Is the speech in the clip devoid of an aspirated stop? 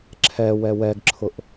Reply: no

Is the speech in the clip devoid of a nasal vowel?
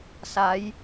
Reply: yes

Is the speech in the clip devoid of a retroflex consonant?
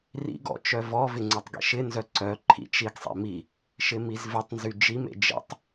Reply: yes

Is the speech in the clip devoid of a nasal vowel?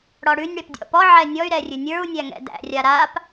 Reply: yes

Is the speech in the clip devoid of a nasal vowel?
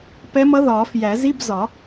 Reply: yes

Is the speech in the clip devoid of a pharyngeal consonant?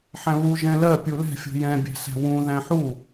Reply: no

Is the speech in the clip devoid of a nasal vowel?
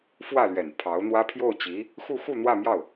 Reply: yes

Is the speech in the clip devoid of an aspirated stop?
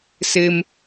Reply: yes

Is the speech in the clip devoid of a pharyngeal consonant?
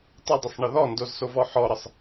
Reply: no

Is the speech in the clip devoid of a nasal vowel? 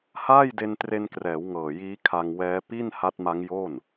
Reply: yes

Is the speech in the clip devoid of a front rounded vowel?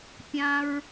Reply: yes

